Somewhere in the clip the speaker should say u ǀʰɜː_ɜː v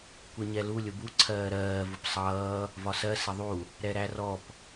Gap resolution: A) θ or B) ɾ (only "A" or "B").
B